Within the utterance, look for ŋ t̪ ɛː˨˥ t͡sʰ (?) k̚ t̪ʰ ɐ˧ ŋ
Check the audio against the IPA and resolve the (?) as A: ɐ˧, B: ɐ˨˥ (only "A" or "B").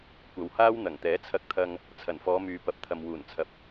A